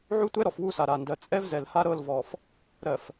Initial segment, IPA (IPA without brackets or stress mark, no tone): ʕ